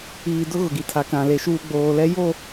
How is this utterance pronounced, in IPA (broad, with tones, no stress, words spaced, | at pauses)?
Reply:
iː˨dʊ˦ ɣʊ˨ɡi˨tʰa˨ kã˨le˨ʃuː˦ ɡ͡boː˨lɛ˦jo˦˨